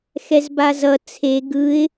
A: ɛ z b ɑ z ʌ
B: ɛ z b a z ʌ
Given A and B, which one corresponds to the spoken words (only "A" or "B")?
B